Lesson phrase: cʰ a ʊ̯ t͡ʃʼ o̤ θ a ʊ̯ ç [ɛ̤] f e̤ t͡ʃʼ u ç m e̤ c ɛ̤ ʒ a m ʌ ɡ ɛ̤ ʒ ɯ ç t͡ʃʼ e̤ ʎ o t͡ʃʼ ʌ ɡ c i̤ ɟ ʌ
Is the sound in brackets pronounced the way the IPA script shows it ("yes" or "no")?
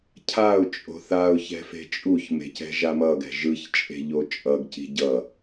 yes